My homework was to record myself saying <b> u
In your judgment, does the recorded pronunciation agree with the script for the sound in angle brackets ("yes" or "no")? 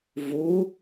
no